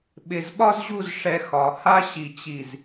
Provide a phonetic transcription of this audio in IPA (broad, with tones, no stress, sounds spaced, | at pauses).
ɓ ɪ˧˩ z ɓ ɒ˥ z ʑ u˥˧ z ʂ ɛ˧ x ɒ˩˧ h a˥ ɕ i˧˩ t͡ɕ i˧˩ z